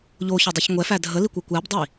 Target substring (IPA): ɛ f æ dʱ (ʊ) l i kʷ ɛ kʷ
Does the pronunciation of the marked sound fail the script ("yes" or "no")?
yes